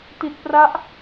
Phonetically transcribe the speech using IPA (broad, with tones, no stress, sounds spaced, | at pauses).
t i˨˩ t̚ p r a˦˥ ʔ